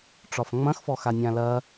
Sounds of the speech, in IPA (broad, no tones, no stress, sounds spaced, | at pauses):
ʈ͡ʂ ɒ f ŋ͡m ɐ̃ x f ɔ x a nʲ ã l ɐ